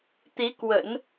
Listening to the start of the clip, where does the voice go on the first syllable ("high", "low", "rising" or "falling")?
rising